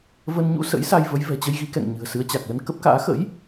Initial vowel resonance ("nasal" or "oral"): oral